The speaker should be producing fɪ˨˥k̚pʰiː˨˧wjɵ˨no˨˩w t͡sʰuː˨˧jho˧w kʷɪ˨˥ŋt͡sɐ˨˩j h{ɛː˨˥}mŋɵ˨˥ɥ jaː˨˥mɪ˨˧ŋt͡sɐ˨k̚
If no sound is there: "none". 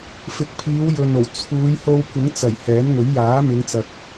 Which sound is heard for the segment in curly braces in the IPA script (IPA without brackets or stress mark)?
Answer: ɛː˨˥